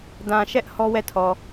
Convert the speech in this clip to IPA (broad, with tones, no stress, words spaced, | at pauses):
dã˨ʃɛ˦ʔ hɔ˦wɛ˦˨tʰɔ˨